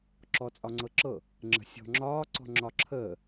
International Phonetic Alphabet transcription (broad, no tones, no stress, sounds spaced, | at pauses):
ǁ ɔ t͡sʼ ɒ ŋ͡ǀ ɤ ǁ ɤ | ŋ͡ǁ ə̤ sʲ ɔ̤ ŋ͡ǁ ɒː ǀ ɔ̤ ŋ͡ǁ ɒ ǁʰ əː